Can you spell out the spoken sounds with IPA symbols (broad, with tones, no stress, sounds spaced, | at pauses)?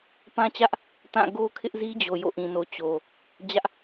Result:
p ã˦ t͡ɕ ä˦ ʔ | t ã˦˨ ɡ o˦ kʰ ɪ˦ ʔ z i˦ d͡ʑ o˨ j o̰˦˨ ʔ ĩ˨ n o˨ t͡ɕ o˨ | d͡ʑ ä˦ ʔ